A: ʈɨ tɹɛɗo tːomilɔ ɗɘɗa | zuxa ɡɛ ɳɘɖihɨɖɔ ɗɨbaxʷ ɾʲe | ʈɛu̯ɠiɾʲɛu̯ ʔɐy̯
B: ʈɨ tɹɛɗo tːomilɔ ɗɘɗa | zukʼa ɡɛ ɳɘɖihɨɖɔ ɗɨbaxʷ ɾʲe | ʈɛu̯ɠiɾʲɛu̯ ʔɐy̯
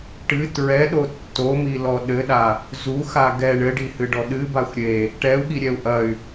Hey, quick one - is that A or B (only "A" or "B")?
A